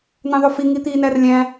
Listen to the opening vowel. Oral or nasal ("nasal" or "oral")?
nasal